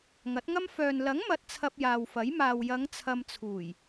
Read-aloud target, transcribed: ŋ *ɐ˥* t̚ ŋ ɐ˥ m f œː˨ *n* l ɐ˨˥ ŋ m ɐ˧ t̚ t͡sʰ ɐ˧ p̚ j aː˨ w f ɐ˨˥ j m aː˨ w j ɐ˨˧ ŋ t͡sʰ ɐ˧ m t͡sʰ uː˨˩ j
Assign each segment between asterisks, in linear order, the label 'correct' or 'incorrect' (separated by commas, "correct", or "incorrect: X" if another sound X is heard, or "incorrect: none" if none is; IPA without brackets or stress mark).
incorrect: ɐ˨˥, correct